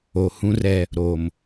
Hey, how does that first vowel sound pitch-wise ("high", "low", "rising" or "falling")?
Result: low